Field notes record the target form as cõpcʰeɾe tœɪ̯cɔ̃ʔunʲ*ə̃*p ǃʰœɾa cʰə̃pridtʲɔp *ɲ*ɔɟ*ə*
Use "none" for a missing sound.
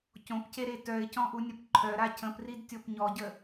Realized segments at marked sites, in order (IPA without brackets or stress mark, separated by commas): ə, ɲ, ə